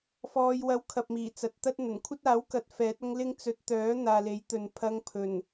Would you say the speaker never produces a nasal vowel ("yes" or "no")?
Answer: yes